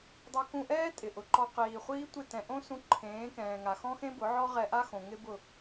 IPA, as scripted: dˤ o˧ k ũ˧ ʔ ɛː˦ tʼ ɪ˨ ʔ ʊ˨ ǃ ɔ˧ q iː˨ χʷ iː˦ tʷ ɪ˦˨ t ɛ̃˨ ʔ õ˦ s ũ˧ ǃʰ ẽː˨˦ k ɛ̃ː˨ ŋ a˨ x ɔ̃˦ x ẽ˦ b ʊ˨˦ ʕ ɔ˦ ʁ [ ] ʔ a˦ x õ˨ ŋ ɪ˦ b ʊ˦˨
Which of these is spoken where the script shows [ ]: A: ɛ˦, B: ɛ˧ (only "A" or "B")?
B